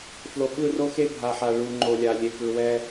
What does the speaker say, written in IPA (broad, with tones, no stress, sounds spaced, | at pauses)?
f l o˨ ɓ ɯ˦˨ r o˦ x e˦ bʱ a˨ ħ a˨ ɭ u˨ ŋ͡ǃ o˨ lʲ a˨ lʲ e˨ k ɯ˨ w ɛ˦